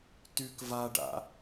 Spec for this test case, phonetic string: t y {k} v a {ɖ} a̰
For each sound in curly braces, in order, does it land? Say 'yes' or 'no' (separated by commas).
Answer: yes, yes